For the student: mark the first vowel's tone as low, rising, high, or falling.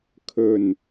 low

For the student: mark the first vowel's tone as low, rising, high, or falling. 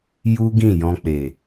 high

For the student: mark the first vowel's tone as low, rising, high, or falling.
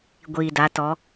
low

